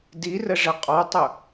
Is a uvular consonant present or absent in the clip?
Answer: present